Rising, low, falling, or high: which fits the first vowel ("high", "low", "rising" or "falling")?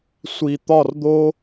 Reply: low